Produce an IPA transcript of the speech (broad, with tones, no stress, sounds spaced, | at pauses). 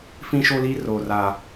f ĩ˦ ʃ o˦ l i˦ r oː˦ r aː˦